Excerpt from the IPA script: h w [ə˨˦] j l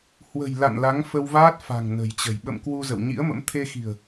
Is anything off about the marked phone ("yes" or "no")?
yes